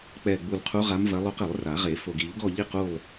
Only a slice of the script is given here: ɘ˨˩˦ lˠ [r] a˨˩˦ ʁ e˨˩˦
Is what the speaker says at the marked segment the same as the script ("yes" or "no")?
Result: yes